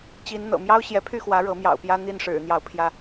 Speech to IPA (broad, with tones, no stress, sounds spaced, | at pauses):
t͡ɕ i˨˦ n n̪ ɤ̰˨˩ m j ɑ˦ ʊ̯ ɕ j ɛ˨˦ pʰ y˥˨ x w ä˨˦ ɻ ɤ˨˦ m j ɑ̰˨˩ ʊ̯ p j ä˦ n̪ i˥˨ n ʂ ɻ̩˨˩ n̪ j ɑ˨˦ ʊ̯ pʰ j ä˥˨